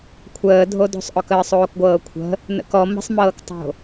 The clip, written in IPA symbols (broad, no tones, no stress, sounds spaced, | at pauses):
kʷʰ əː dʱ o d o̤ sˤ ʔ ɔ k əː sˤ oː k ɡʷ ɤː kʷʰ ə̤ | n ə̰ k ɔ m ə̤ sˤ m ɤː k tˤ o̤